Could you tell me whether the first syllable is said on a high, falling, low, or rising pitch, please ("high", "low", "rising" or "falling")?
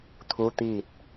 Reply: rising